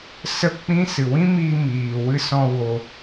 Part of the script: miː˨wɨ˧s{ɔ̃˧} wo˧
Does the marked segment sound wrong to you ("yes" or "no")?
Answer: no